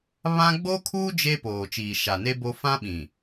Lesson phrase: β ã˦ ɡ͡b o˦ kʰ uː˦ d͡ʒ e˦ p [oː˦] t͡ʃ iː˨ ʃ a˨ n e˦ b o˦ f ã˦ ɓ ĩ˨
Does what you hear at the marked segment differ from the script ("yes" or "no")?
yes